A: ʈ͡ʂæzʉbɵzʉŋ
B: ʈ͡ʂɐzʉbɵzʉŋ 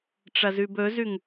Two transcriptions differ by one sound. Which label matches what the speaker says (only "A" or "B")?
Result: B